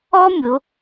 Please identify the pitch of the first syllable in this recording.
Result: high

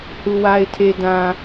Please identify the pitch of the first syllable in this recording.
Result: low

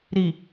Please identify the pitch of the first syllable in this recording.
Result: low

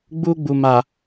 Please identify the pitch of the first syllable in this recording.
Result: high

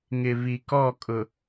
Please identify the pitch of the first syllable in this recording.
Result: low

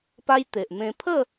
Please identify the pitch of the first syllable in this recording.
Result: high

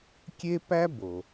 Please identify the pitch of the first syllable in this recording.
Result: high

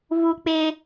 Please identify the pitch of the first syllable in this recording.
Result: high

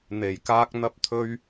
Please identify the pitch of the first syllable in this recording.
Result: low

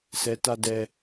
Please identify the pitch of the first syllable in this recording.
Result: low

